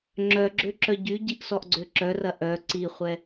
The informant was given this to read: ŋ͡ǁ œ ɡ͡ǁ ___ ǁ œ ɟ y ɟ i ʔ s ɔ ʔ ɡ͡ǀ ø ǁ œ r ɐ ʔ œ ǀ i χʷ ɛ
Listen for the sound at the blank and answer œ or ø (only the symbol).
ø